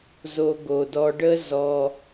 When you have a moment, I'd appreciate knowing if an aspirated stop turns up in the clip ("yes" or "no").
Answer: no